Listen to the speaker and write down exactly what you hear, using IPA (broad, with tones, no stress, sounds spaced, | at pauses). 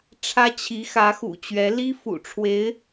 ʈ͡ʂʰ ä˥ t͡ɕʰ i˧˥ x ä˧˥ x ṵ˨˩ t͡ɕ ɥ ɛ˧˥ l i˥ f ṵ˨˩ ʈ͡ʂʰ w e˧˥ ɪ̯